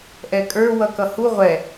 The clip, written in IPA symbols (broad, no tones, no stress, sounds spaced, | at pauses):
ʔ ɛ kʼ ə˞ w ʌ k ʌ h u ʁʷ ɛ